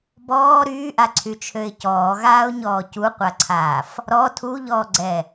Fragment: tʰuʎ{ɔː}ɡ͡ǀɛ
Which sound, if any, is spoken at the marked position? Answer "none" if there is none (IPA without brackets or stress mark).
ɔː